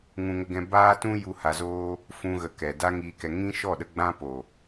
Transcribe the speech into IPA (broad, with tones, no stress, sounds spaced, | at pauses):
ŋ ũ˧ ŋ ə˧ ɡ ɛ̃˧ b aː˦ t ũ˦ j u˧ h a˧ z oː˦ | f ũ˧ ɣ ə˨ k ɛ˨ d a˦ ŋ iː˧ k ɛ˧ ŋ ĩ˦ ʃ ɔ˦˨ ɗ ə˧ ɡ͡b ã˦ p o˨